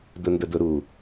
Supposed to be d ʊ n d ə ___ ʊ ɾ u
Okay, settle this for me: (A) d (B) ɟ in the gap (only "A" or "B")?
A